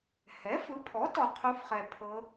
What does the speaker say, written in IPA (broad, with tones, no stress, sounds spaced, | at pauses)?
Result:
h ɛ˩˥ f ɯ˩˥ pʰ ɔ˩˥ t ɔ˨˩ qʰ u˧˥ f χ ɛ˨˩ pʰ ɤ˧˥